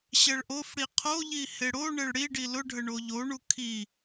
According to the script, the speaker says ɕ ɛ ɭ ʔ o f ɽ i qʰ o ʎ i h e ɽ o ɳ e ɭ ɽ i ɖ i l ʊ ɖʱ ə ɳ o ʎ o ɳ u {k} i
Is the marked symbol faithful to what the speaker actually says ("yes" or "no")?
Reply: no